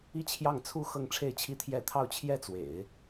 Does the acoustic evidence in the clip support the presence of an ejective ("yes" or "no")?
no